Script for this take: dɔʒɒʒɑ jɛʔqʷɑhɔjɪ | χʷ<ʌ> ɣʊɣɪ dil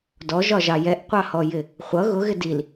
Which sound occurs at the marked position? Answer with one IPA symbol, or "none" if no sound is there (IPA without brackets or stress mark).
ʌ